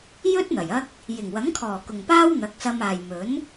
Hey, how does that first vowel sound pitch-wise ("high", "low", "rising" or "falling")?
high